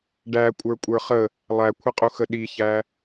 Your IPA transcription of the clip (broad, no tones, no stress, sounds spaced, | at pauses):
ɖ æ kʷʼ ə˞ kʷʼ ə˞ χ ə | lˠ æ kʷʰ ɪ qʼ u x ə ɗ i ç æ